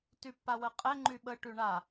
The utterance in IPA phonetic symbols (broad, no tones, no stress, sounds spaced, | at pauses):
t y pː a w ə qʼ ɛ ŋ͡ǃ y ɓ ə ʈ y ɳ a